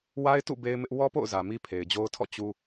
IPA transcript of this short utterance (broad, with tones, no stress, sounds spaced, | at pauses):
w a˦ ɪ̯ t ṵ˦˨ b e˦ ɪ̯ m ɪ˦ ʔ w ɔ˦ p o̰˦˨ ʊ̯ z ä˨ m i˦ pʰ e˨ ɪ̯ d͡ʑ o˦ ʊ̯ tʰ ɔ̰˦˨ t͡ɕ u˦